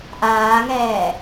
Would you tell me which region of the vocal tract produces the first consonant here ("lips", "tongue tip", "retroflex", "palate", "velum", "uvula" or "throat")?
throat